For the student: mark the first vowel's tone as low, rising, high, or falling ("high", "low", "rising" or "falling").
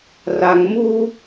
low